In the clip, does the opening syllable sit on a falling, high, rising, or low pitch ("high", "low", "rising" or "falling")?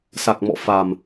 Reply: low